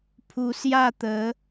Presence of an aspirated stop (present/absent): present